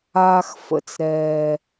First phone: aː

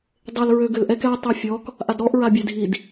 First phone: dˤ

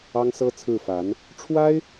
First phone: ɑ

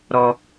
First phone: ɾ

